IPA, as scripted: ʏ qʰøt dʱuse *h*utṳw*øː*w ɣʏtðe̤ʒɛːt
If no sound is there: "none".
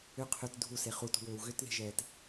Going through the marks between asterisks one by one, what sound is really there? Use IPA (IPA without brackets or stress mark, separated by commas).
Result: χ, øː